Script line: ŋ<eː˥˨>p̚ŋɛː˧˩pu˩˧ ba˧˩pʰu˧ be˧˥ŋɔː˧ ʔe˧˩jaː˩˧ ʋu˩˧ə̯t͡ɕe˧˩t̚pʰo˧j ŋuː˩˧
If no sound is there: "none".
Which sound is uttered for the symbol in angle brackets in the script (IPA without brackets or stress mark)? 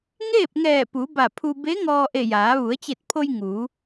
eː˥˨